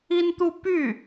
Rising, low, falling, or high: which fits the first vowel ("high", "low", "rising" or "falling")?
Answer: high